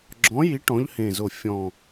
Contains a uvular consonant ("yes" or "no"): no